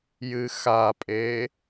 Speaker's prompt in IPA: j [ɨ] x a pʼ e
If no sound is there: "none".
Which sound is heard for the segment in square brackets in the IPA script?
ɨ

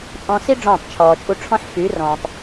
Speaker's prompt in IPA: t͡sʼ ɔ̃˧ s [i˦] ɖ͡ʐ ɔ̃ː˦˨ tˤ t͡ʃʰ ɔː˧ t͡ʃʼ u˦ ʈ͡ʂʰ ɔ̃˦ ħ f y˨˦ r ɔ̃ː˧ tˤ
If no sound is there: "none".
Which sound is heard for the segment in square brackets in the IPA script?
i˦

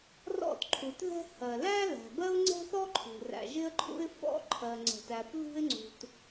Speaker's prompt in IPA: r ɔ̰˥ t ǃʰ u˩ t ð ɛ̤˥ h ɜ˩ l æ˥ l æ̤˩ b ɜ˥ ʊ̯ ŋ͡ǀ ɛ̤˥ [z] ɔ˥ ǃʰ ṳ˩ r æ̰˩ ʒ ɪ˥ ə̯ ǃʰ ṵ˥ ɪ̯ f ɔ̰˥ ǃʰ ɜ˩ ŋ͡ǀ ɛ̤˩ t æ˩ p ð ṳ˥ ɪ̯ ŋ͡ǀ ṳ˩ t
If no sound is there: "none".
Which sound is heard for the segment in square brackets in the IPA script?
θ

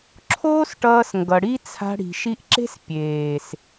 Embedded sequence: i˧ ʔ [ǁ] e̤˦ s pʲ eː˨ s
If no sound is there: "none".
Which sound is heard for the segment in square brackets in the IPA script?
ǁ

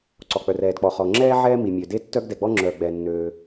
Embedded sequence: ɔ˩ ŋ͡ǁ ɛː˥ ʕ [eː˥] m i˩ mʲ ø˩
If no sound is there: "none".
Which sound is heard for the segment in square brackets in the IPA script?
ɛː˥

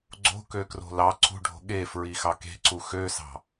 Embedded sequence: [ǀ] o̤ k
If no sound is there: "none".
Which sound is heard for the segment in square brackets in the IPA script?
ɡ͡ǀ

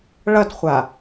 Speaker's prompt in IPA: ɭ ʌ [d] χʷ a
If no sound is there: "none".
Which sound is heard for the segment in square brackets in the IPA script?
d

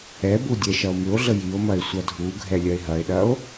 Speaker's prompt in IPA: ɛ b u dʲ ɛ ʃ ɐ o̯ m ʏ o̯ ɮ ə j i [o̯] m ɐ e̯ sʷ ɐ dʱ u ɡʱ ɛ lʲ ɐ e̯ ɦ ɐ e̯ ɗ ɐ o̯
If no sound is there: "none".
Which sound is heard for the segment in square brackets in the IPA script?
o̯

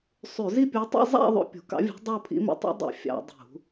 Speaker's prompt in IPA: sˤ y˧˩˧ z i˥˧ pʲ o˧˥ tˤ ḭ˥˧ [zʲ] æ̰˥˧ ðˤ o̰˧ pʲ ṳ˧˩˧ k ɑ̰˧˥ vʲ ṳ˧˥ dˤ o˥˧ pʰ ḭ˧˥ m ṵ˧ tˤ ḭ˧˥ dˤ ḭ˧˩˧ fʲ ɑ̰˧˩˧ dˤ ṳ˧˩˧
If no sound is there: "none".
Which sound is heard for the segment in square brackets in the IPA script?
zˤ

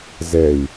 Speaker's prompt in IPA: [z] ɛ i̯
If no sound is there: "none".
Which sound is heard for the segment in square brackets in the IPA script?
z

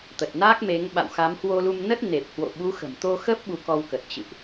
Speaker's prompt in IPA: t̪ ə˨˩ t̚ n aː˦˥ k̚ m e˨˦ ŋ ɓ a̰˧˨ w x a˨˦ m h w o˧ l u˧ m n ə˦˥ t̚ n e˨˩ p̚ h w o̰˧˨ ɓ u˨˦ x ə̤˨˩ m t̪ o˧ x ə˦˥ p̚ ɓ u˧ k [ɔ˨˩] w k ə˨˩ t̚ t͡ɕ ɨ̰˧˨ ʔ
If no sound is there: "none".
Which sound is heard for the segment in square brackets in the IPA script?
ɔ˧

